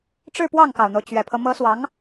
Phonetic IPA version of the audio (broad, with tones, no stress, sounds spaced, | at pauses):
ʈ͡ʂ ɻ̩˥˧ p w ɑ˥˩ ŋ k ɑ˨˩ ʊ̯ n̪ o˦ ʊ̯ t͡ɕ ɥ ɛ˨˩ pʰ ɤ˦ m ɤ˧˥ s w ɑ˧˥ ŋ